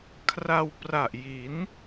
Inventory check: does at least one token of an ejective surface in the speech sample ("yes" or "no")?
no